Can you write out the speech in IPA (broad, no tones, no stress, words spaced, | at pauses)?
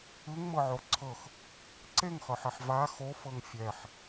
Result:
ɯŋmɤʕo ǀʰɤx | ǀeŋχɤħɛħ va xofɤŋ fʲɛħ